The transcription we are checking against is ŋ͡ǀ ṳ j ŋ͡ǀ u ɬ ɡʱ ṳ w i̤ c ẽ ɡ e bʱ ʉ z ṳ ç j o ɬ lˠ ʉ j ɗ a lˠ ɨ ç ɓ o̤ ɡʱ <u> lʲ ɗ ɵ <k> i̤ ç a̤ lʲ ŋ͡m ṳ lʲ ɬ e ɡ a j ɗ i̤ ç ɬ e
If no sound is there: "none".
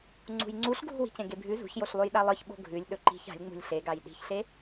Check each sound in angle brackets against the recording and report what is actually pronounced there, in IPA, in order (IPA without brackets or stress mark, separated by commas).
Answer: ʉ, ǃ